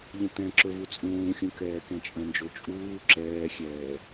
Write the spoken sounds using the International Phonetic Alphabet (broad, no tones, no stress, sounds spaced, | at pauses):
ʎ ə̃ t̪ ɛ̃ ǁ ɵ v u t͡sʼ ũː xʲ ũ k ɛː k ɛ̃ t͡ʃʼ ə̃ n d͡ʒ o t͡ʃʼ uː ǁ ɛː xʲ ɛː